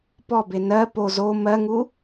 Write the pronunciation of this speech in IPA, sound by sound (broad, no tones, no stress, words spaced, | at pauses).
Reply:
pɔbe nɜ po zo mɜŋu